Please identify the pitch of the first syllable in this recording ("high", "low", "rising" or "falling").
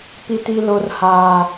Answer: high